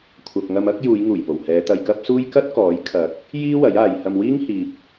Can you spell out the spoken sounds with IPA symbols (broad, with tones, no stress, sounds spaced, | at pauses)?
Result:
kʷʰ ɐ˨ p̚ ŋ ɐ˧ m ɐ˥ k̚ j uː˨˧ j ŋ uː˨˩ j p o˨˩ w h ɛː˨˧ t̪ ɐ˧ j k ɐ˥ p̚ s uː˥ j k ɐ˥ t̚ k ɔː˨˥ j kʰ ɐ˨˥ k̚ | j iː˥ w ɐ˨˥ j aː˨ j h ɐ˧ m w iː˥ ŋ h iː˨ p̚